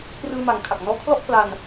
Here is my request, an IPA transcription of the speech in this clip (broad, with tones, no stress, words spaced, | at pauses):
krɯː˧ma˨˩ŋkʰa˨˩k̚ nɔː˦˥kʰlɔ˥˩ʔkla˧n